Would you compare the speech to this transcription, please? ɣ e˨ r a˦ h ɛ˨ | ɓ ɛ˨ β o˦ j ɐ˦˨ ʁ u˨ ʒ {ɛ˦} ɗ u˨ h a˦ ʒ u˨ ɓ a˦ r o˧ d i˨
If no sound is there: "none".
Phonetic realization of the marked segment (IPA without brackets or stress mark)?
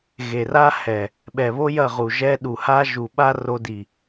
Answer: ɛ˦